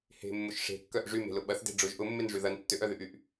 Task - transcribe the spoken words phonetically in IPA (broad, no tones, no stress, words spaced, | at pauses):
he̤mːʊʃ ʂe̤kːœʔ ʐyme̤lʊ ɓɐθde̤ ɖ͡ʐʊʒ ʔʊmːenʐy ðɐn tːøʔœðyʔyʔ